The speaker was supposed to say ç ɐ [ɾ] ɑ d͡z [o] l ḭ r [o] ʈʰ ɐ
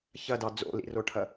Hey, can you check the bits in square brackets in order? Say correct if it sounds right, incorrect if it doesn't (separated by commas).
incorrect, incorrect, correct